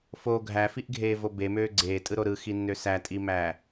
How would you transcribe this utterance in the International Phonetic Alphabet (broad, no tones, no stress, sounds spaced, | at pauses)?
f o ɡʱ æ f i ʔ ɡʱ eː v o b e m øː ɡ͡ǀ eː tʼ ɯ ɾ o ɾ ɯ x i nː ø s æ tʼ i m æː